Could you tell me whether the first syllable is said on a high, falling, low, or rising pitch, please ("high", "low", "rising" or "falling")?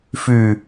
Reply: low